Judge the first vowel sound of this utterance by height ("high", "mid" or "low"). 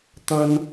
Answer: low